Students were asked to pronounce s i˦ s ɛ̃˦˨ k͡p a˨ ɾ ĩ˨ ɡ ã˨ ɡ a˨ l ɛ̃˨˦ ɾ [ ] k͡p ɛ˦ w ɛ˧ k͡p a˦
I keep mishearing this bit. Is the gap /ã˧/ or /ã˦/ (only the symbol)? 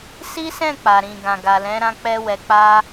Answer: ã˦